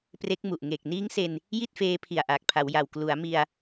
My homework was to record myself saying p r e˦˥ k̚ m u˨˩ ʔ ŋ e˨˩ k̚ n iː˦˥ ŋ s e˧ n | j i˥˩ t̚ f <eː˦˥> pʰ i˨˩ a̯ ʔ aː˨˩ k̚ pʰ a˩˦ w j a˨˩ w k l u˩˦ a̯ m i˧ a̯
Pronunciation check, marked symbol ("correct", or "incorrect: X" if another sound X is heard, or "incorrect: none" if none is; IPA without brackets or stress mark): correct